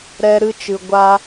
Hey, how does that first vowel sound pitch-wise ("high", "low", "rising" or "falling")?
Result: high